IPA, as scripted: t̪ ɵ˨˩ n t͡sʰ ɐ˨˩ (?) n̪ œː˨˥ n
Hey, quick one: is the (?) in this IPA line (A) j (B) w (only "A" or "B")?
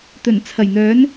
A